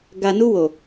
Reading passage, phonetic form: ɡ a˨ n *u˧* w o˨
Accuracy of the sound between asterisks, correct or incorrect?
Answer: correct